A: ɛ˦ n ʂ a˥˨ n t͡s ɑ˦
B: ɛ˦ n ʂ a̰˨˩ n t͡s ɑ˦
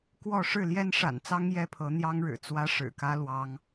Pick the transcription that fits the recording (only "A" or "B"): B